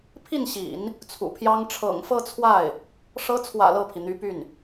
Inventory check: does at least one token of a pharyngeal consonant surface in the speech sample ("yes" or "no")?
no